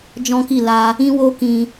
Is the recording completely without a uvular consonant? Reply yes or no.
yes